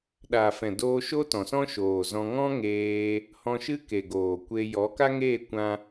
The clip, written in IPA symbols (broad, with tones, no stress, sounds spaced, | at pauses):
ɗ a˨ f ɛ̃˨ d oː˧ ʃ o˦ t ɔ̃˨ s ɔ̃˦ ʃ oː˨ z ɔ̃˧ ŋ ɔ̃˦ ŋ eː˧ | h ɔ̃˧ ʃ ɨ˦ k e˨ ɡ oː˨ kʷ e˧ j ɔ˨˦ k a˦ ŋ eː˦˨ kʷ ã˦